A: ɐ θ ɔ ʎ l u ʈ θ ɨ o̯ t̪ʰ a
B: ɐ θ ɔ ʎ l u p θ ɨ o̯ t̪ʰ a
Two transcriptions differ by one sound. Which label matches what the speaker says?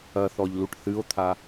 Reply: A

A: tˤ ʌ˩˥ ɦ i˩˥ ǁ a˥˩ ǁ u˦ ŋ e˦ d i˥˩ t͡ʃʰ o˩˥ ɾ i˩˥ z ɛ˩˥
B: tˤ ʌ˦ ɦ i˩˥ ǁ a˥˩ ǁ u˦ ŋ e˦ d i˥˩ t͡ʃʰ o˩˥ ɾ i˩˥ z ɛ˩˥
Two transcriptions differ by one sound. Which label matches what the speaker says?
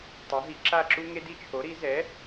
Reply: A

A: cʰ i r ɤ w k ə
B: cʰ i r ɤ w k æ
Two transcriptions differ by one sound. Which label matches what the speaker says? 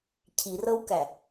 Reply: B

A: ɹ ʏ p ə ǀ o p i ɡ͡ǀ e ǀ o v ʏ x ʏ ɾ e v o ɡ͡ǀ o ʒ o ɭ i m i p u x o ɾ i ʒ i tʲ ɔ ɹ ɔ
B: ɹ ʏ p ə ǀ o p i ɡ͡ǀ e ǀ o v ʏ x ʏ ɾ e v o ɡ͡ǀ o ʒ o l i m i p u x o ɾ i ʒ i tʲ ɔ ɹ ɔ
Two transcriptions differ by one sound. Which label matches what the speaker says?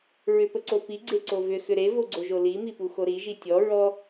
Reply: B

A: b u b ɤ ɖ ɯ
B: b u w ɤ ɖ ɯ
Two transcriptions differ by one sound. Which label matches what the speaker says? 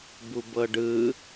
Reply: A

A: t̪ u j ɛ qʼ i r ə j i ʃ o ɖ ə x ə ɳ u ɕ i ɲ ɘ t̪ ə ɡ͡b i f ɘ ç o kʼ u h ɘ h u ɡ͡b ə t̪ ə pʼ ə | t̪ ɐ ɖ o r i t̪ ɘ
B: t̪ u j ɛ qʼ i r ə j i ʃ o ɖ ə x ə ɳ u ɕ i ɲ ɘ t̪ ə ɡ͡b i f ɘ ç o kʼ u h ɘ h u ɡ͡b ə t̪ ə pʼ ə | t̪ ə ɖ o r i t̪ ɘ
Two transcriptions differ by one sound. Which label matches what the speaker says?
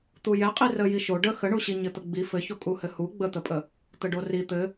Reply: B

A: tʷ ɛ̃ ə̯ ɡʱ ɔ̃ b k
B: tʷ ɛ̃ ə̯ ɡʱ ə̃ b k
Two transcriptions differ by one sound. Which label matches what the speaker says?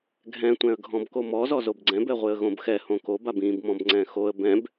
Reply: A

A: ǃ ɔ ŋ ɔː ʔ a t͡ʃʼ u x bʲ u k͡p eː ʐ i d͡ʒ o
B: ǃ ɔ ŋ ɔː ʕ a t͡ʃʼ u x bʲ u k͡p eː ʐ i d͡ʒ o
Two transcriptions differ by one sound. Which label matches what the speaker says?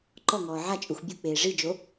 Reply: B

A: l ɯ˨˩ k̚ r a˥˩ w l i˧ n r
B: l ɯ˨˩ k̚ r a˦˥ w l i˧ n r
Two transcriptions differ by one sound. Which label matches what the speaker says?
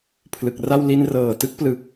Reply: A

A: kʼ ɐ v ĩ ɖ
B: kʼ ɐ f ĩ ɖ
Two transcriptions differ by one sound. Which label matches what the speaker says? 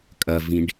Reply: A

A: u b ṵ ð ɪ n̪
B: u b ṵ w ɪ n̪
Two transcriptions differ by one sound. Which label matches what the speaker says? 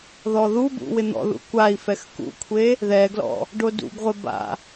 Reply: B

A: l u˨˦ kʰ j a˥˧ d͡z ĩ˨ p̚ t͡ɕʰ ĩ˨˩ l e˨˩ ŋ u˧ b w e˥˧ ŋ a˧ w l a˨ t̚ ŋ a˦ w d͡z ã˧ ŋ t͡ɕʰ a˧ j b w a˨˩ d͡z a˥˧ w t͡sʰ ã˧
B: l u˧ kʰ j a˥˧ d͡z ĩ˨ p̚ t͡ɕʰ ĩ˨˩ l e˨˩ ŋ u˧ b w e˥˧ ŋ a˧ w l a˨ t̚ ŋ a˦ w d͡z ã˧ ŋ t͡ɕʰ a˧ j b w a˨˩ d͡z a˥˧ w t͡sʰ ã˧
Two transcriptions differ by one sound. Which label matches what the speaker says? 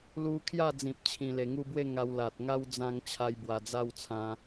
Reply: B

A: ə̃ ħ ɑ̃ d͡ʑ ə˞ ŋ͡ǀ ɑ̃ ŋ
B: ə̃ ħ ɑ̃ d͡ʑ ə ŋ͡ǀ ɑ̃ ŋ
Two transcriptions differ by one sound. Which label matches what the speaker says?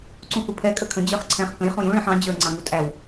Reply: A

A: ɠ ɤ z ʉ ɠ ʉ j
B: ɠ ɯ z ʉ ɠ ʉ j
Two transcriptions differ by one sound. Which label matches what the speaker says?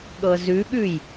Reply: A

